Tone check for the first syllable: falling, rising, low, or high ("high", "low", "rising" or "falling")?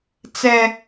high